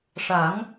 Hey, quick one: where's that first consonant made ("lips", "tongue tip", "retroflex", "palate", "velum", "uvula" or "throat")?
retroflex